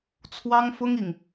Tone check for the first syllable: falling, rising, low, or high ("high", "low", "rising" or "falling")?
high